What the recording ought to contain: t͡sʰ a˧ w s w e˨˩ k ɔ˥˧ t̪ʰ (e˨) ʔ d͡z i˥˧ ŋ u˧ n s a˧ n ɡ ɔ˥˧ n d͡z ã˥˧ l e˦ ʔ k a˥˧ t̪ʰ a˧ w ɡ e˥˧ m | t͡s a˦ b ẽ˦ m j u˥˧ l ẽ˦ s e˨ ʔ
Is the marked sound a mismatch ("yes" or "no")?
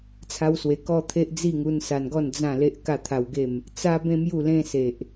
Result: yes